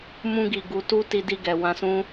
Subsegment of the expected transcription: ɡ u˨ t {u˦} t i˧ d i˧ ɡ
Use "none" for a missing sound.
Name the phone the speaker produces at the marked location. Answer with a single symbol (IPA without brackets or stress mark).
u˧